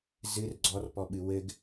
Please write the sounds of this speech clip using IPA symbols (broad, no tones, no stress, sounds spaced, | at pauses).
z ɨ r ɡ͡ǀ ɔ r p ɔ ɓ ɨ w ɘ ɡ